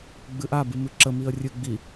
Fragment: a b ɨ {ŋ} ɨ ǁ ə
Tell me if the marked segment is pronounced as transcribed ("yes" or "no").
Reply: no